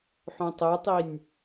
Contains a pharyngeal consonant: yes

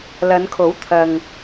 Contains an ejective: no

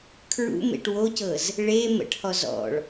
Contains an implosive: no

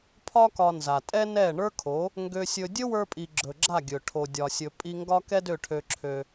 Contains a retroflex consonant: yes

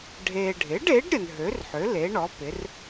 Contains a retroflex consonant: yes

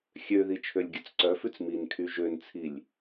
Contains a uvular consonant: no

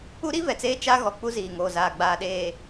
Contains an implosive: yes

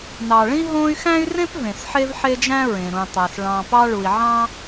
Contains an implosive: no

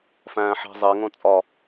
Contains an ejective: yes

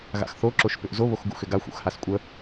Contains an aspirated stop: no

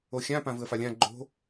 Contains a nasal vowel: yes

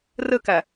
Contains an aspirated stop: no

